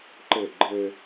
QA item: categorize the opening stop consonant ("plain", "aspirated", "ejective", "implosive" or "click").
click